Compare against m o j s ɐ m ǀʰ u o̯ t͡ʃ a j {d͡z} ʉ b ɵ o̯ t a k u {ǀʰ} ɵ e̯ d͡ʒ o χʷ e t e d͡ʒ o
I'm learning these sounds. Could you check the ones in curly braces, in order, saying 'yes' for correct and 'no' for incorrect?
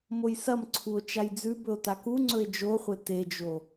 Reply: yes, no

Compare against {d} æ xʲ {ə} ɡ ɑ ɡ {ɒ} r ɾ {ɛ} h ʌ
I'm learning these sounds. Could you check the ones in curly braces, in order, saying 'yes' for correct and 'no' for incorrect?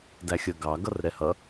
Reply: yes, yes, no, yes

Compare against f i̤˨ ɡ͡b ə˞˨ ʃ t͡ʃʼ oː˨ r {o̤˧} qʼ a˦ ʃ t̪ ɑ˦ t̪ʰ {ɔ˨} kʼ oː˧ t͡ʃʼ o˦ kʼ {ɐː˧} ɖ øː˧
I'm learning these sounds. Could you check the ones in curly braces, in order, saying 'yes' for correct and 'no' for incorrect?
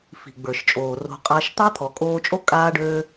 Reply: yes, yes, no

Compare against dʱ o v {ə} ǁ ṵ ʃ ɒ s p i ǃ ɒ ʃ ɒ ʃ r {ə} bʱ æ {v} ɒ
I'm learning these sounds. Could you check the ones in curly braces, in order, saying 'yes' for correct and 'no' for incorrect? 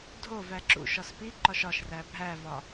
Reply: no, no, yes

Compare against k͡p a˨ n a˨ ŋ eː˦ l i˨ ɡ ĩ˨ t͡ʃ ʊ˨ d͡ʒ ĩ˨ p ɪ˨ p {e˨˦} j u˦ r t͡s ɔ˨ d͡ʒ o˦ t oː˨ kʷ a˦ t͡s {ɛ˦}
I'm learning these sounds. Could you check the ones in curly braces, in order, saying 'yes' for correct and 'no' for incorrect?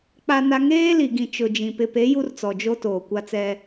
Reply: yes, yes

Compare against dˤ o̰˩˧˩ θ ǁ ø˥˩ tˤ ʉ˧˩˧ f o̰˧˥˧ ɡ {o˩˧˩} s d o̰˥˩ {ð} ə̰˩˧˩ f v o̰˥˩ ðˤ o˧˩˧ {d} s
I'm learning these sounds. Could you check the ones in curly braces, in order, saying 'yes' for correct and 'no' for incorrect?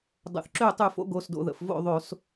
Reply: yes, yes, no

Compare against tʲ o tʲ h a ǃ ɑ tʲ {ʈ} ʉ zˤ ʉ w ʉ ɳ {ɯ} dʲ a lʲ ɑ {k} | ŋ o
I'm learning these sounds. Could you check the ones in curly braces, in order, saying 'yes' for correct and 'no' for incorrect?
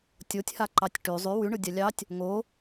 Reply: yes, yes, no

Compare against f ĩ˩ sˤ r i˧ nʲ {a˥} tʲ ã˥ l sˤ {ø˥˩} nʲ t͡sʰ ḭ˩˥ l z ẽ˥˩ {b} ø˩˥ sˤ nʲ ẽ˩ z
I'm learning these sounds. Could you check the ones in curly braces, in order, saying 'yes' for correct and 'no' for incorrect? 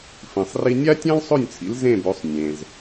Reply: yes, yes, yes

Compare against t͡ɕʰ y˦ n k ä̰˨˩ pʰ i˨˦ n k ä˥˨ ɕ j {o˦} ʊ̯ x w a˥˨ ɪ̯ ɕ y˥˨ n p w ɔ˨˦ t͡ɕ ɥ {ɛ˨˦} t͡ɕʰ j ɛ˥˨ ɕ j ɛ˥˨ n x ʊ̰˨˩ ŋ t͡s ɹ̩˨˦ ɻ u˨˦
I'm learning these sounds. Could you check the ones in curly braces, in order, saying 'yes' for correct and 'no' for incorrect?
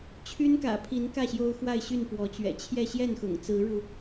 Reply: yes, no

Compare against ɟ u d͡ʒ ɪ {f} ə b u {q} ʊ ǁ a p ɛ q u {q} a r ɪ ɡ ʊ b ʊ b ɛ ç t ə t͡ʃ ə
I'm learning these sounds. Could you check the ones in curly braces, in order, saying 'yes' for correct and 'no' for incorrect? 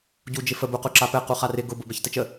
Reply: yes, yes, no

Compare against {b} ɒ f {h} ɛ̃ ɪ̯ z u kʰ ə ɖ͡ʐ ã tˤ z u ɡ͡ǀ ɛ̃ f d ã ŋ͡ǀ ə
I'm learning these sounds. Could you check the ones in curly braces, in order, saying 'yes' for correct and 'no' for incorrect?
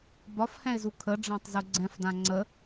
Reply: yes, yes

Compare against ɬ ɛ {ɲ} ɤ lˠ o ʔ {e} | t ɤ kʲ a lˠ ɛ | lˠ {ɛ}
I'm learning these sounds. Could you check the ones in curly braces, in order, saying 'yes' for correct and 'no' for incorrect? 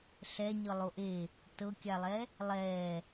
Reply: yes, yes, no

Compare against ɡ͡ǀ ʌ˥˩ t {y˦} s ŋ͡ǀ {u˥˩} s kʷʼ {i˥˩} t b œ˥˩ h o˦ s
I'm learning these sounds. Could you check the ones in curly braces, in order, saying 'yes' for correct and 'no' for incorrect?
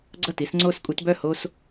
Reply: no, no, no

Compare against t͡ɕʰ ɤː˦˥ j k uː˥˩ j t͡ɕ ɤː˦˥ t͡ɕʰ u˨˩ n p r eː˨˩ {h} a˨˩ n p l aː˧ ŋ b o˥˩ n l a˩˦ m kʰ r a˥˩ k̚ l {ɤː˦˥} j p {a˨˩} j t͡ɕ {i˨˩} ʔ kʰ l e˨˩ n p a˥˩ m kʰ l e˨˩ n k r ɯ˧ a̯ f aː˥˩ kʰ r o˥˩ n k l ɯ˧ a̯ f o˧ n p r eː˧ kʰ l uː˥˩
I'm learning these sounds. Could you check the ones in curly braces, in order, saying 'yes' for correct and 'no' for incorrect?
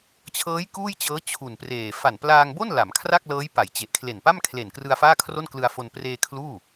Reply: no, yes, no, no

